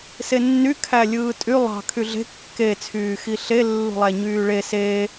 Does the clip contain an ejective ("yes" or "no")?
yes